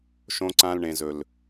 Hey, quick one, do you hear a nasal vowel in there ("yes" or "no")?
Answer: yes